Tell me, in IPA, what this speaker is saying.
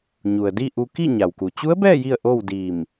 ɲ u˩ ə̯ d i˥˨ ʔ u˧ k i˥˨ ɲ a˩ w k u˩ t͡ɕ u˧˥ ə̯ b ɛː˥˨ j i˥˨ ə̯ ʔ oː˥˨ w d iː˧˩ m

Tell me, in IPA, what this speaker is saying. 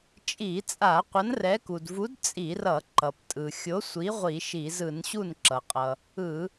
t͡ʃʼ i˧˩˧ t͡sʼ a˧˩˧ qʷ ʌ˨˥ n r ɛ˨˥ k u˩ d v u˨˥ d t͡sʼ i˧˩˧ r ʌ˧˩˧ ǃ ʌ˩ p tʼ ɯ˩ xʲ o˨˥ sʷ i˨˥ ʁʷ i˧˩˧ ʃ i˧˩˧ z ɯ˧˩˧ n ɕ u˥˩ n ǁ ʌ˩ qʼ ʌ˩ | ɯ˧˩˧

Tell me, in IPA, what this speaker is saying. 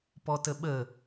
p ɔ t ə ɓ ə

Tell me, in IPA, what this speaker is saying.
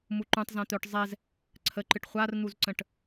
m u ǃ ũ tˤ z ã t̪ œ ʈ zˤ ɛ z | ǀʰ ə ǃ ɨ ʈ χʷ a r n̪ u z ǀ ə̃ ʈ

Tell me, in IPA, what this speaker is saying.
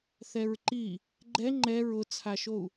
θ ɛ ɹ ǃ i | ɡ͡ǃ ɛ ŋ͡ǃ ɛ ɹ ʊ t͡sʰ a ʃ o u̯

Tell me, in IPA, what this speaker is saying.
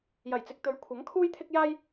j ɐ˨˩ j t͡s ɪ˨ k̚ t̪ ɵ˨˥ ɥ kʷʰ ɐ˨˥ ŋ kʰ uː˥ j t̪ʰ ɪ˥ k̚ j aː˥ j

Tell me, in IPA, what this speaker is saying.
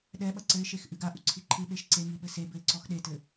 ɗ ɛ ɓ ɐ ǀ ɘ ɪ̯ ʃ e x ʔ ɨ ɡ a ʔ u ǀʰ i ǃʰ ɨ ɓ e ʃ ǀ e ŋ i ɓ ɘ s e b ɘ ɪ̯ ǀ ɔ x ɗ e t ɘ

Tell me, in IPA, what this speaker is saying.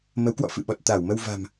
m ə˨˦ w k w ɔ̰˧˨ f ɨ̰˧˨ ɓ ɔ˨˩ t̚ t̪ a˧˩ w m ə˧ w v a̤˨˩ m

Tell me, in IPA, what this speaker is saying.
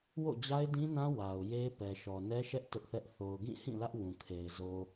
w o̰˦˨ d͡ʑ a˦ ɪ̯ d ĩ˦ n ã˦ w a˨ ʊ̯ j e˦ p ɛ˨ ʃ ɔ˨ n ɛ˦ ʃ ɛ˦ ʔ t ʊ˦ ʔ θ ɛ˦ ʔ θ o˨ ʊ̯ ɡ ĩ˦˨ h ĩ˦˨ l ä˦ ʔ w ũ˨ kʰ e˨ ɪ̯ z o˨

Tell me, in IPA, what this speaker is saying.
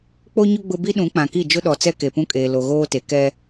k͡p o˦ ɲ ʊ˦ ɡ͡b ʊ˦ b i˦ ɗ ũ˨˦ k͡p ã˨ k i˦˨ d͡ʒ ʊ˦ ɗ ɔ˨ t͡s ɛ˦ k e˨ p ũ˦ kʼ eː˨ l o˨ ɣ oː˦ t e˨ k ɛ˦

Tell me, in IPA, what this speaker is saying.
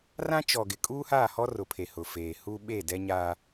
r ã˦ t͡ʃ ɔ˨ ɡ ɪ˨ kʼ uː˦ h aː˦˨ h ɔ˦ r ʊ˨ pʰ e˨ h ʊ˨ f eː˨ h u˦ ɓ e˦˨ d ɛ˦ ɲ aː˦

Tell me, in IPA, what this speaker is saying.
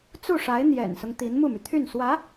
t͡s u˥˩ ʂ a˧˥ ɪ̯ n̪ j ɛ̰˨˩ n s ʊ˦ ŋ t̪ i˧˥ n m u˥˩ m y˩ t̪ʰ y˥˩ n s w ä˧˥

